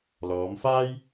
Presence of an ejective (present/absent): absent